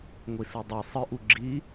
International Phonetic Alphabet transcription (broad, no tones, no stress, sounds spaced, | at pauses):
ŋʷ i s u dˤ u sˤ ɨ ʔ u ɡ͡ǁ i